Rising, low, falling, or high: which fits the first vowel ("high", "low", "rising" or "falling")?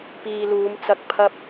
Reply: low